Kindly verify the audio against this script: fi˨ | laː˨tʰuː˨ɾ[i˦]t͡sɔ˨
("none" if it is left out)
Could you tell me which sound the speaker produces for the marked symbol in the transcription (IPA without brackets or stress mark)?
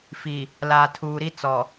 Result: i˦